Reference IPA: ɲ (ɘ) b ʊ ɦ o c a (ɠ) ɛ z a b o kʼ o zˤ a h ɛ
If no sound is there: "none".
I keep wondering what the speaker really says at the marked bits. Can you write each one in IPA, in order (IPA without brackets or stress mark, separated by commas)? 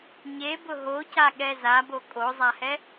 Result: e, ɠ